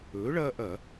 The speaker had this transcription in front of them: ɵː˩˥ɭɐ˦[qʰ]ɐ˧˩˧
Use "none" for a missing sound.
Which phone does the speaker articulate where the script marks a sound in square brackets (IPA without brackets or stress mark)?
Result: ʔ